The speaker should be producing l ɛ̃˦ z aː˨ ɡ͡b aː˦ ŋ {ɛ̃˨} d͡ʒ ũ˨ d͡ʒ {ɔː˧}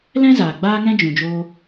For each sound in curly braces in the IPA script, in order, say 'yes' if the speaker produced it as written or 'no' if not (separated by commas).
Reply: no, no